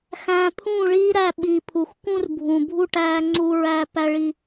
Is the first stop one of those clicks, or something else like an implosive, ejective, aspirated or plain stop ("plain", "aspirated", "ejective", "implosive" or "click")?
aspirated